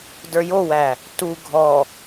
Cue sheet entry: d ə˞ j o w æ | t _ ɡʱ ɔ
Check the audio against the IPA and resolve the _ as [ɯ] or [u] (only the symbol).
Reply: u